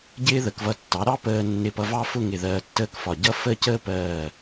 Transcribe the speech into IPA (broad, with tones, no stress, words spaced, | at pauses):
ɟɪː˥ðə˩˧kvʌ˧˩ tːɑ˩˧ɾɑ˥˧ pəː˧nːɪ˧˩pʌ˧ vɑ˥fʊ˥˧ŋɪ˧˩ ðɜː˧tːəː˥˧kfɒ˧˩ ɟʌ˥fə˥˧cəː˥pɜː˧˩